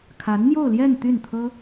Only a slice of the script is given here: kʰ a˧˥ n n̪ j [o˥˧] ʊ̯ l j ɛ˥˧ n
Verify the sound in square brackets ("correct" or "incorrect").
correct